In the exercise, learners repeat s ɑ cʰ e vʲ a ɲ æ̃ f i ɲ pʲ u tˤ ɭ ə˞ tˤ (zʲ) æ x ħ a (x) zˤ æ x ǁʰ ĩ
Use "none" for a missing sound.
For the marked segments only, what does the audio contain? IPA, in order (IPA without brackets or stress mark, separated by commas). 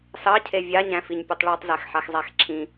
z, x